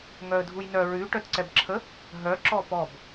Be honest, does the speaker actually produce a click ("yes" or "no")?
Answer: yes